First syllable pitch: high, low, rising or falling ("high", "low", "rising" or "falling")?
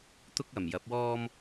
high